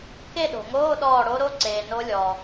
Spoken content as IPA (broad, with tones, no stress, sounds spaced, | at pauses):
k e˥˨ ɗ o̤˩ ŋ oː˧˥˧ ɗ ɔː˧˩ ɽ o˨˦ ɾ o˧˥˧ ǀ eː˩ n o˨˦ lʲ ɔː˩